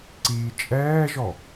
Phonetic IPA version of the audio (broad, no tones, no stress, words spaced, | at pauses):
ǀiːt͡ʃʼɛːʒɔ